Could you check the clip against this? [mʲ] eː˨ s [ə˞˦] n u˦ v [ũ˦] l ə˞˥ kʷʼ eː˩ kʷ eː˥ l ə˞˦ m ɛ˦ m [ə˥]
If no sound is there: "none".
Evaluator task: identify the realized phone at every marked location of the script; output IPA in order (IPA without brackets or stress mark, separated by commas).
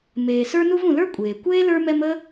m, ə˞˥, ũ˨, ə˥